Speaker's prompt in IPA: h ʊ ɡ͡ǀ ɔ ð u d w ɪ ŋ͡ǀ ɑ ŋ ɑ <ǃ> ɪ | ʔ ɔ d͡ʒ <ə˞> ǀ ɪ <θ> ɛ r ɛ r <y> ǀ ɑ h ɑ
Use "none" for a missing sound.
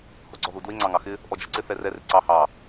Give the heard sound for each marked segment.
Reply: x, ə˞, θ, ɪ

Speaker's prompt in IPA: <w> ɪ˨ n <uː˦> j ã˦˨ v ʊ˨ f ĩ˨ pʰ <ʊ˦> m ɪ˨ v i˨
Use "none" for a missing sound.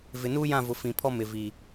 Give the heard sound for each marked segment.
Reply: v, uː˦, ɔ˦

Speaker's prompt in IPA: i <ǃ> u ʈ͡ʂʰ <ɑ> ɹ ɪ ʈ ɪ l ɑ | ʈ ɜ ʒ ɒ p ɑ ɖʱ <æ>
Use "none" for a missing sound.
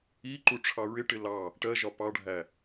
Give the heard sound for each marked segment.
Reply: ǃ, ɑ, æ

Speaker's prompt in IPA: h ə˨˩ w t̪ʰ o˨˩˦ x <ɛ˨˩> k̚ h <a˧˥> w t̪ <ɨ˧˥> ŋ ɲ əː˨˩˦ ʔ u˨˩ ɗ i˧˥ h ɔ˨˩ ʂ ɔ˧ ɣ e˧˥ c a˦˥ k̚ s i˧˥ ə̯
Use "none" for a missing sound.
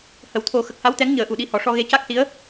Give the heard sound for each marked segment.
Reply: ə˨˩, a˧˥, ɛ˧˥

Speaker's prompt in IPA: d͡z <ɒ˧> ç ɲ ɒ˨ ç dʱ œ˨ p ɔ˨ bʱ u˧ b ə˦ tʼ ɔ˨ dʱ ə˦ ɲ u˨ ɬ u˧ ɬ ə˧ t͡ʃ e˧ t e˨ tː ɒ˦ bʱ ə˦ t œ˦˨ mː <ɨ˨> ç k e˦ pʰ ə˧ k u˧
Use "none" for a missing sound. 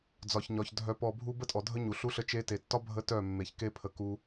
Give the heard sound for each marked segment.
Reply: ɒ˨, e˨

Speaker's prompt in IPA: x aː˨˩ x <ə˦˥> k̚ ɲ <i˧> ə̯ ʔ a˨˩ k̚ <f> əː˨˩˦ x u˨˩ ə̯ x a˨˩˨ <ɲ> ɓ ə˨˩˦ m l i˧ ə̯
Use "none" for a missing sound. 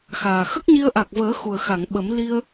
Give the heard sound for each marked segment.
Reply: ə˦˥, i˧, v, ŋ

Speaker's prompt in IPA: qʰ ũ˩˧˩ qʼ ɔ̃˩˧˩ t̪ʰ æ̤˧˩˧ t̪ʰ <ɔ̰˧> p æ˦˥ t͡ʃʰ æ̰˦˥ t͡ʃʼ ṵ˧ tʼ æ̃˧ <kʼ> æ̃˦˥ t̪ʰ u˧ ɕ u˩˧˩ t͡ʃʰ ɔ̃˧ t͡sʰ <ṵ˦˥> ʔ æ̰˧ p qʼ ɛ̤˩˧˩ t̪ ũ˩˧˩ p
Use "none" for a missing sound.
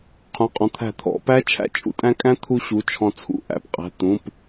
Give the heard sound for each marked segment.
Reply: ɔ̰˧˩˧, kʼ, ṵ˧

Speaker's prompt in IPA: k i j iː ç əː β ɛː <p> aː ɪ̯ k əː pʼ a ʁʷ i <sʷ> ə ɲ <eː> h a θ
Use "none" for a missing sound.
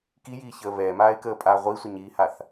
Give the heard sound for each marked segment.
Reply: m, sʷ, iː

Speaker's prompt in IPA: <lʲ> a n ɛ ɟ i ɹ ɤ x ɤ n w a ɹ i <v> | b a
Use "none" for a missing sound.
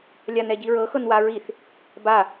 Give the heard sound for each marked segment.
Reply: lʲ, θ

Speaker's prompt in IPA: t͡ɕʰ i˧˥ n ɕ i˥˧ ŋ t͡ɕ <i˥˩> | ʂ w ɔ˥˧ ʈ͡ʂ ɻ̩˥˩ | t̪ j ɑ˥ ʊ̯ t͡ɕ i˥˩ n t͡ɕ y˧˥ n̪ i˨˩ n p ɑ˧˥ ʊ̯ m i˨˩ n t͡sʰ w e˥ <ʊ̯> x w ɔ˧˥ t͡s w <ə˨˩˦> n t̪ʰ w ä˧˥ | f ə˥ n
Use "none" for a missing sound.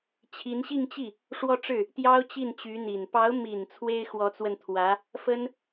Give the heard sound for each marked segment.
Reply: i˥˩, ɪ̯, ə˧

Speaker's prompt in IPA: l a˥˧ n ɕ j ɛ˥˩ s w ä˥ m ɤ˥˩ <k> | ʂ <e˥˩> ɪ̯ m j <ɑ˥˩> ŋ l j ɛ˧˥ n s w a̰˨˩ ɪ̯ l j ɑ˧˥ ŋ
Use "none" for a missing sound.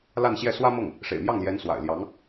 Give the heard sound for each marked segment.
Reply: ŋ, ḛ˨˩, ɑ˥˩

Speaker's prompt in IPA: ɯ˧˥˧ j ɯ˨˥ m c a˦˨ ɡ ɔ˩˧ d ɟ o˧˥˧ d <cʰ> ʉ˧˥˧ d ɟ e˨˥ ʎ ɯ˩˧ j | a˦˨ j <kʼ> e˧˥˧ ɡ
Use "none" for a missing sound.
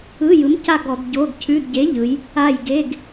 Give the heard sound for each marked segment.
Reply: cʰ, ɡ

